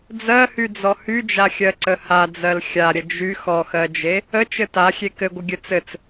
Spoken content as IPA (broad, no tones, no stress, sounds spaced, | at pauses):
d͡z ɜ h y d͡z ɔ h y d͡ʒ a xʲ ɜ ǀ ə h a d͡z ɜ l xʲ a ɾʲ ə d͡ʒ y x ɔ x ɜ d͡ʒ e | ə t͡ʃ ɘ t a xʲ e k ɘ ɡʷ ə ɡʲ ɘ t͡s ɘ t͡s